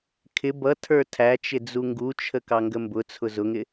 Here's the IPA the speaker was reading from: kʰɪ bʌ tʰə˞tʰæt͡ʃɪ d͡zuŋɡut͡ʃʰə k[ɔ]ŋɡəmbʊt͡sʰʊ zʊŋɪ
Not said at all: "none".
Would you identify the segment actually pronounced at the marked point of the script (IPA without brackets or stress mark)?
ɑ